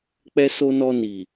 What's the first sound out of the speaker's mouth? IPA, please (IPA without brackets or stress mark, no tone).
k͡p